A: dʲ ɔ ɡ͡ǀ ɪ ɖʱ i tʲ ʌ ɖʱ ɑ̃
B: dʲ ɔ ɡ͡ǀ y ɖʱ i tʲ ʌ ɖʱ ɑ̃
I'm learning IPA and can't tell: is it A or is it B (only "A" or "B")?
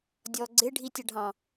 A